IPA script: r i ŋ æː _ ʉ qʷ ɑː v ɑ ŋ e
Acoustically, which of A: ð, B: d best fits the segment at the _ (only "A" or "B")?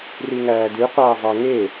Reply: B